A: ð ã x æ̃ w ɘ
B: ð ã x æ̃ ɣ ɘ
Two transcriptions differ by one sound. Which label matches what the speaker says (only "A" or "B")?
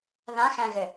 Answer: B